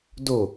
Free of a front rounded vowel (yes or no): yes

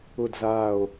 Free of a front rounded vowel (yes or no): yes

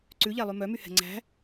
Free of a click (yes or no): no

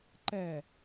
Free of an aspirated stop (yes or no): yes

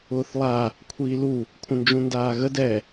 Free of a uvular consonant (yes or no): yes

